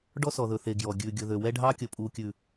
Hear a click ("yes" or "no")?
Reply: no